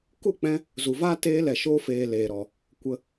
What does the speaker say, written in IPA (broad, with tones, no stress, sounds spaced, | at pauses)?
k u˦˨ k͡p ɛ̃˧ | z u˨ v aː˦ t eː˧ l ɛ˨ ʃ o˧ f eː˨ l eː˨ ɾ ɔ˨ | kʷ ə˧